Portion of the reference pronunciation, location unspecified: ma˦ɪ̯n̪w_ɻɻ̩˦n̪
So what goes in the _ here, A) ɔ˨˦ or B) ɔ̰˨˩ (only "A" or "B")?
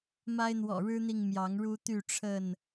B